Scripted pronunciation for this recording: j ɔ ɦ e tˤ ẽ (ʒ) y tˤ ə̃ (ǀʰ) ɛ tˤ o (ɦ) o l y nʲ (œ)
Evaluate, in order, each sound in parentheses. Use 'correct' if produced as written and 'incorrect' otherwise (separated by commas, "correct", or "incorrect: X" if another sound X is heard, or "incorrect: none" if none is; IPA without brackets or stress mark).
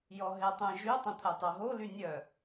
correct, incorrect: t̪ʰ, correct, correct